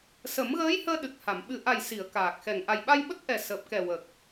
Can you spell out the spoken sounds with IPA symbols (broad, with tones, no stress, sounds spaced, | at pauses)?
s ə˨˩˦ m ɣ əː˧˥ j h əː˧ ɗ ɨ˨˩ k̚ h a˨˩˨ m ɓ ɨ˨˩ ʔ a˨˩ j s i˨˩˨ ə̯ k aː˨˩ k̚ x ɛ˨˩ ŋ ʔ a˨˩ j ɓ a˧ j ɓ ə˦˥ k̚ ʔ ɛ˨˩ s əː˨˩ p̚ k ɛ˨˩ w ə˨˩ k̚